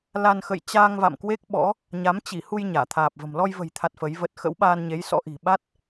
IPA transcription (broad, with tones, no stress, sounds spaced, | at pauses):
l a˧ n x ə̰˧˨ j t͡ɕ aː˧ ŋ v a̰˧˨ m k w e˦˥ k̚ ɓ ɔ̰˧˥ | ɲ a˨˦ m t͡ɕ i˧˩ h u˧ j ɲ aː˧˩ t̪ʰ aː˨˩ p̚ v ə̤˨˩ m l ɔ˧ j v ə̤˨˩ j t̪ʰ a˨˩ t̚ f ə˨˦ j v ə˦˥ t̚ x ə̰˧˥ w ɓ aː˧ n ɲ e˨˦ j s ɔ̰˧˥ ʔ i̤˨˩ ɓ a˦˥ t̚